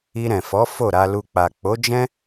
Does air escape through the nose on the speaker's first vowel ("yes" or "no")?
no